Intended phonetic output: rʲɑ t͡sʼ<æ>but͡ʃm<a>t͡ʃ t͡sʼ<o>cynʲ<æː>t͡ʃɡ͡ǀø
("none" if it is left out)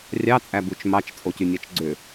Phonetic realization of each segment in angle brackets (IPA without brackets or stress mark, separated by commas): æ, ɑ, o, æ